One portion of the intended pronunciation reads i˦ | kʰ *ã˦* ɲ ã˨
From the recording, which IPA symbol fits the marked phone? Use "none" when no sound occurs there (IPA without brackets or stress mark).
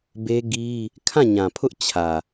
ã˦˨